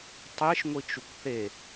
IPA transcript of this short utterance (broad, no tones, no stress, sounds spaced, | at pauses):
tˤ e ʃ ŋʷ i t͡ʃ u kʷ θ e